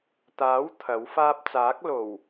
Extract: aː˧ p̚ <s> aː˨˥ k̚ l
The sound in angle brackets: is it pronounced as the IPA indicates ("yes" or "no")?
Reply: no